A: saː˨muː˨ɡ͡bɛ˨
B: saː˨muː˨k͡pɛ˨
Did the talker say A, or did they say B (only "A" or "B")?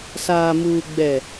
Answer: A